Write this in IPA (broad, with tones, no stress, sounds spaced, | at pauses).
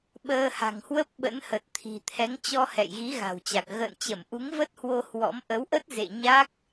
ɓ əː˧ h a̤˨˩ ŋ h w ə˦˥ p̚ ɓ ə̰˧˥ n h ə˨˩ t̚ t̪ʰ i̤˨˩ t̪ʰ ɛ˨˦ ŋ t͡ɕ ɔ˧ h ɛ̰˧˨ j ɣ i˨˦ ɣ a̤˨˩ w t͡ɕ a˨˩ k̚ ɣ ə̰ː˧˨ n t͡ɕ ə˧˩ m ʔ u˨˦ ŋ v ə˦˥ t̚ h w o˧ h w ɔ̰˧˥ m ʔ ə˨˦ w ʔ ə˦˥ t̚ z ḛ˧˨ ɲ a˦˥ k̚